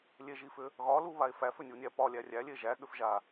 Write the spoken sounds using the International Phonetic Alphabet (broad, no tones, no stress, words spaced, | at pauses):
lʲeʒifʏ | ɣɒluβae̯ fæfʏnʲunʲæ pɒlʲæ rʲælʲe ʒæɠʏfʒa